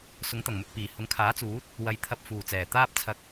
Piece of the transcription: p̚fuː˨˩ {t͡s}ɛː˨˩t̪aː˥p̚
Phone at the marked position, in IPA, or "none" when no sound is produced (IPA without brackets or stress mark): t͡s